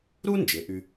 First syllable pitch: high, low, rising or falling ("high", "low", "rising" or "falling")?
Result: high